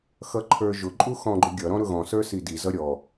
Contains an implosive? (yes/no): no